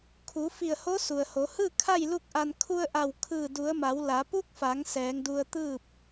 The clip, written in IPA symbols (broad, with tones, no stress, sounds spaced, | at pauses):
kʰ u˩˧ f i˧˩ ə̯ h o˧˥ s u˩ ə̯ h o˩˧ h ɯː˥˨ kʰ a˥˨ j l u˥˨ k̚ ʔ a˧ n kʰ u˧ ə̯ ʔ a˧˩ w kʰ ɯː˧˩ d u˩˧ ə̯ m a˩˧ w l a˩˧ p u˧˥ k̚ f a˩˧ ŋ s ɛː˩˧ ŋ d u˧ ə̯ t̪ ɯː˥˨ p̚